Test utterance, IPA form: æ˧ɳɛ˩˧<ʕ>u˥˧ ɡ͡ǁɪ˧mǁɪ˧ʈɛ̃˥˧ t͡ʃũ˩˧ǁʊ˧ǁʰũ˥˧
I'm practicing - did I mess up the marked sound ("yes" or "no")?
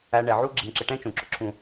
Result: no